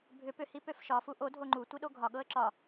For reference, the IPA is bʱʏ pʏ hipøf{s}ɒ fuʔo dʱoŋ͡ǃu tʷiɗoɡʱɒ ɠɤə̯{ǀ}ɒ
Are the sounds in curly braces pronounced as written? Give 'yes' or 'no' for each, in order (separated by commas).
no, no